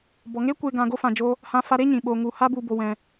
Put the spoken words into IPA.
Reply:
b ɔ˨ ŋ e˦ kʷ e˧ ɡ ã˧ ɡ o˧ f ã˨ d͡ʒ oː˧ | h ã˧ f a˧ ɾ e˦ ɲ ĩ˨ ɓ o˨ ŋ u˨ h a˦ b u˧ b o˧ w ɛ̃˧

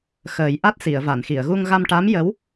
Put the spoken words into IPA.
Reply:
x əː˨˩˦ j ʔ a˦˥ t̚ s i˨˩˨ ə̯ v a˨˩˨ n x i˨˩˨ ə̯ ɣ u˧ ŋ ɣ a˧ m ʈ a˧˥ m j ə˧˥ w

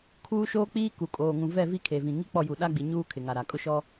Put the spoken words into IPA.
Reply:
kʰ uː˦ ʃ oː˦ k͡p iː˦ k u˨ kʼ oː˨ ŋ ũ˨ v ɛ˦˨ v i˦ kʰ e˨ v ĩ˨ ŋ i˦ k͡p ɔ˦˨ j u˨ ɗ a˦ ɡ͡b i˨ ɲ uː˦ kʰ ɪ˨ ŋ a˨ ɾ a˨ kʼ ʊ˦ ʃ ɔ˦

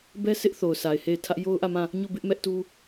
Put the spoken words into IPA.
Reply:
b ɛ˦ s ɪ˦ ʔ θ o˨ ʊ̯ sʰ a˨ ɪ̯ h e˦˨ ɪ̯ tʰ ä˦ ʔ j o˦ ʊ̯ ʔ ä˦˨ m ã˦˨ | ɲ o˦˨ b ɪ˦ ʔ m ɛ˦ ʔ t u˦

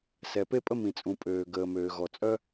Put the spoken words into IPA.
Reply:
s ɛ˩ p e˥ pʼ ə˥ m ĩ˩ t͡sʼ ũ˩ pʼ øː˩ ɡ əː˩ m øː˩ ɣ ɔ˩ t͡sʼ œ˥

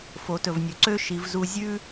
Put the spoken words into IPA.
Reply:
f o˩˧ t ɵ˩ v nʲ ɵ˩ ǀ ø˥ ʃ i˩˧ v z u˧ zʲ ʉ˥

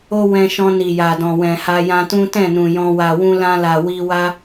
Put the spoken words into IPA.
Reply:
o˦ w ɛ̃˧ ʃ ɔ̃˧ n i˨ j a˨ d ɔ̃˨ w ɛ̃˨ h a˧ j ã˧ t ũ˦ t ɛ̃˦˨ n ũ˨ j ɔ̃˧ w a˨ w ũ˧ l ã˧ l a˨ w i˧ w a˦

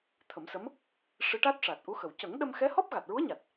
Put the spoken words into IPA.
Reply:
t̪ʰ ə˨˩˦ m s ə˧˥ m | ʂ ɨ˧˥ ʈ a˦˥ t̚ ʂ a˨˩ t̚ ʔ u˧˥ x ə˨˩ w c ə˨˩˦ ŋ ɗ ə˧ m x ɛ˧˥ h ɔ˦˥ p̚ ɣ a˨˩ t̚ ɹ u˧˥ ə̯ ɲ a˨˩ t̚

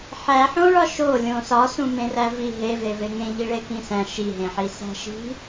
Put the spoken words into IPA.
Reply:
ħ æ ħ õ ɭ ɒ ʃ o lʲ õ s ɒ s ũ m ẽ r æ v i ɦ e v e v e ŋ ẽ ʎ i ɭ e k ĩ s æ̃ ʃ i ɦ ẽ ħ i s æ̤ ʃ i̤

